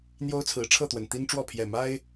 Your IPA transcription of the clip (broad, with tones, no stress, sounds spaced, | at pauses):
n̪ j o˦ ʊ̯ t͡sʰ ɹ̩˨˦ ʈ͡ʂʰ ɤ˥˨ t̪ w ə˨˩ n t̪ i˦ n ʈ͡ʂ w ɔ˥˨ pʰ j ɛ˨˩ m a˦ ɪ̯